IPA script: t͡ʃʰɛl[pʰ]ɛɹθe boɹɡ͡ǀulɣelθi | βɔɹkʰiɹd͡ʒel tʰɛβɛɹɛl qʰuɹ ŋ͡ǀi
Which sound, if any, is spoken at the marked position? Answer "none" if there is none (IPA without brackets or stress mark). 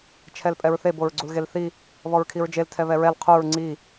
pʼ